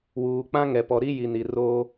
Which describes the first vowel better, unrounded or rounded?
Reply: rounded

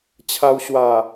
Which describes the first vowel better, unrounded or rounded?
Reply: unrounded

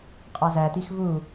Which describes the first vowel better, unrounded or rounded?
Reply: unrounded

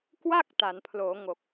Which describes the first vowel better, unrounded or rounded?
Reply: unrounded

